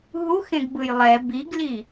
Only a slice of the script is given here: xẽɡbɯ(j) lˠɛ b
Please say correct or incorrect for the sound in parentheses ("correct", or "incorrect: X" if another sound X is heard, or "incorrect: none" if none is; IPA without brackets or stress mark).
correct